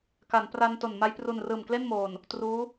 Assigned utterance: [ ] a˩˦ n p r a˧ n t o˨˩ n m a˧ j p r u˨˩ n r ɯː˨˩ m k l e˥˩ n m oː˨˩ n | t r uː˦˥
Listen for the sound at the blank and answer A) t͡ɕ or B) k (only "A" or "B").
B